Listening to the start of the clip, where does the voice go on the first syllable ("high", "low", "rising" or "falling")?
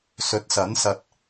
rising